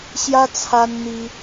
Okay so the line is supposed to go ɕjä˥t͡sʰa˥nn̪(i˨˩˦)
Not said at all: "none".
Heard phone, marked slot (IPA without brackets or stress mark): i˥